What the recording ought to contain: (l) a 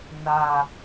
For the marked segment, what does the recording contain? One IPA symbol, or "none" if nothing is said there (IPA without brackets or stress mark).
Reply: n